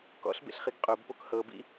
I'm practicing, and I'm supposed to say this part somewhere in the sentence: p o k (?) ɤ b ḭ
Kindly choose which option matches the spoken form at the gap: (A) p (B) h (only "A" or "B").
B